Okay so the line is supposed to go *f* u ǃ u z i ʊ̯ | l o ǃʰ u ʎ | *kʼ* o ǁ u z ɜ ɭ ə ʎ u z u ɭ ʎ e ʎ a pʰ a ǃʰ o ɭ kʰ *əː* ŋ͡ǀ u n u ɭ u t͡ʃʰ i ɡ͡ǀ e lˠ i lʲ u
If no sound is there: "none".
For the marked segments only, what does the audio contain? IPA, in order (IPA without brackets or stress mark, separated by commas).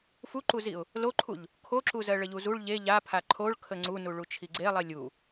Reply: f, kʰ, ə